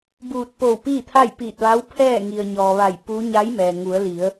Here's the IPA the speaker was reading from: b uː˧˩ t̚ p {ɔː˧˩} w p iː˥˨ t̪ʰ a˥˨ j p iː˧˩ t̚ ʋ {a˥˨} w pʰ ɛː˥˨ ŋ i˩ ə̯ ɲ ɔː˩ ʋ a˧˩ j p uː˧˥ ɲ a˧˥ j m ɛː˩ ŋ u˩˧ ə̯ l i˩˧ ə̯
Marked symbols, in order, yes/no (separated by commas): no, no